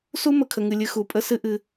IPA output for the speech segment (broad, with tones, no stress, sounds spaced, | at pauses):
s u˦ m ə˨ kʰ ə˨ ŋ ɨ˨ lʲ ɨ˧ x u˨ pʼ ə˦ s ɨ˦ ʔ ɨ˧